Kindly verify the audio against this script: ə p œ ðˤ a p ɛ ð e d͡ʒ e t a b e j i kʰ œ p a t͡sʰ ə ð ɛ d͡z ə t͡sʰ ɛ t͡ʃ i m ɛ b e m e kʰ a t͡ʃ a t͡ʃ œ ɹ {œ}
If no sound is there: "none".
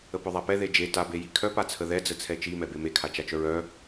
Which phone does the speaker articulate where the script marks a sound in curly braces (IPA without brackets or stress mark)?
œ